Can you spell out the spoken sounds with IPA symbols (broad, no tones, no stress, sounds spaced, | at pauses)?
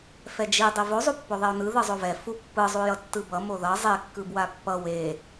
f ɛ d͡ʒ i dˤ i v o zˤ u pː o ðˤ e o̯ n ɯ ð ɯ zˤ o v ɛ f u pː ɯ zˤ u j ʌ tː ɯ b ʌ m o ð ʌ zˤ e kː ɯ b w a pː ʌ w e